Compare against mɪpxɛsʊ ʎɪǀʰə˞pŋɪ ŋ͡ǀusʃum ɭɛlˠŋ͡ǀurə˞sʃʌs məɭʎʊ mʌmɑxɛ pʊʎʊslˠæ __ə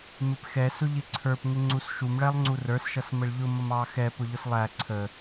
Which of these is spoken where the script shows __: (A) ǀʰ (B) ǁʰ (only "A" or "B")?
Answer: A